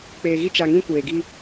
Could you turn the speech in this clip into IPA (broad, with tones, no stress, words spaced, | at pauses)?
k͡peː˨ɣi˦ t͡ʃa˨ŋĩ˦ kʷeː˨ɡi˦